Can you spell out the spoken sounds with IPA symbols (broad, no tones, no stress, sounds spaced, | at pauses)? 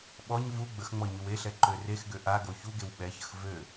ɓ ɔ ɲ v u ɡ͡b ə x ŋ͡m ɔ ɲ y w e ɬ ɛ ǃ ø r e x ɡ ø ʔ a ɡ o ç u ɡ e w ɓ ɛ ç ə x v ø